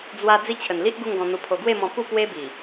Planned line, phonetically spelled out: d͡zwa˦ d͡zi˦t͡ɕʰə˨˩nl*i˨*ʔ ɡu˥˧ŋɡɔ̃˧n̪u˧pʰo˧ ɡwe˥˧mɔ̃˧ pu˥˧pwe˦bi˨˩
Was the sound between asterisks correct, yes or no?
no